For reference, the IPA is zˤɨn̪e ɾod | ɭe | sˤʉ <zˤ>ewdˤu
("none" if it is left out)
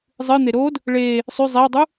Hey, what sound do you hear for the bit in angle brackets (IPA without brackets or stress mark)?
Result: zˤ